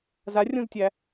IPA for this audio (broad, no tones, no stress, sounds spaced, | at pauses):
z a rʲ õ z tʲ æ